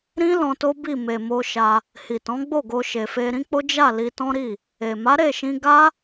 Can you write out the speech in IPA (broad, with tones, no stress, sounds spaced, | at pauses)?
ɾ ĩ˦ l ɔ̃˧ t o˦ b i˦˨ m e˨ m o˧ ʃ a˧ | h i˨ t ɔ̃˨˦ ɡ͡b o˦˨ ɡ o˧ ʃ e˨ f e˧ ɾ ĩ˦ k͡p o˦ d͡ʒ a˦˨ l i˧ t ɔ̃˦ ɾ i˦˨ | e˨ m a˨˦ ɾ e˦˨ ʃ ĩ˧ ɡ a˦